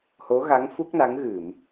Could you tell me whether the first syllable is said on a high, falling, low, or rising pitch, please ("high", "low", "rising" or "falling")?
rising